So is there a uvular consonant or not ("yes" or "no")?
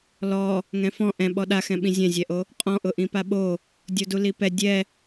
yes